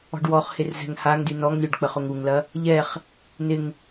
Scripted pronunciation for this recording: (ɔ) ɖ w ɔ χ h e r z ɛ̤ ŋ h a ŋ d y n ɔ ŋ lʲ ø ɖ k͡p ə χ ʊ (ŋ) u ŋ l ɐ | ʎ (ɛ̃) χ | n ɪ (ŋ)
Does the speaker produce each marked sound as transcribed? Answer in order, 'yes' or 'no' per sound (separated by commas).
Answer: no, yes, no, yes